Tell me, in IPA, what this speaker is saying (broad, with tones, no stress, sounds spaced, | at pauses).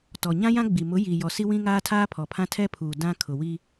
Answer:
t ɔ˨ ɲ ã˦ j ã˦ ɡ͡b i˨ m ʊ˨˦ j i˨ j ɔ˨ s i˦ w ĩ˦ ŋ aː˦ tʰ aː˦ pʰ ɔ˨ pʰ ã˦ tʰ ɛ˦ pʰ uː˨ d ã˦ kʰ ʊ˨ w i˦